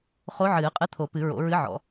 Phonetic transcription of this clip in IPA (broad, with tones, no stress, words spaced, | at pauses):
χo˧˥ ʕɨː˨˩˦qʼɨ˧˥t̪ʰo˨˩˦ pɨ˨˩˦ɹo̰˨˩˦ ɹɨ˧˥ʕɔ̰˨˩˦